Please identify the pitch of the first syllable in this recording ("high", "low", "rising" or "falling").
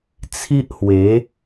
high